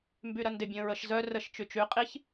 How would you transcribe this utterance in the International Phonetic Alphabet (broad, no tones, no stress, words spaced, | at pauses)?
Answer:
mbyɾɐndɪ bʲə̃ːɹəʃ zœ rəʃ t͡ʃyt͡ʃy qʼiç